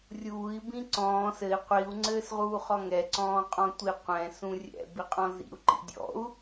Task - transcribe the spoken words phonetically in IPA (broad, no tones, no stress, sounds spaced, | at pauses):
rʲ uː i̯ b ĩ ǀ ɔ̃ː s ɘ i̯ qʷ i u̯ ŋ͡ǀ ɘː s ʁ uː χ ɔ ŋ ɛ ǀ ɔ̃ː qʼ ɔ̃ tʷ i qʷ ɛ̃ s ũ rʲ ɛ̰ b i qʼ ɔ̃ z ḭ u̯ ǃ ḭ dʲ ɔ̰ u̯